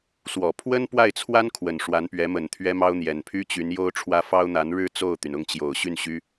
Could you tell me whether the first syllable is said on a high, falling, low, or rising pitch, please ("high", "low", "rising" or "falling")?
low